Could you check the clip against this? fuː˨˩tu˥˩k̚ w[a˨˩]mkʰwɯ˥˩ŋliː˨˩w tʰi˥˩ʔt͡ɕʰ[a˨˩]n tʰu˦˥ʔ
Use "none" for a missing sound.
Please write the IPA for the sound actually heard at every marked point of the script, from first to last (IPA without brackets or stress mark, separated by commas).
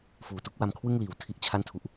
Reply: a˧, a˥˩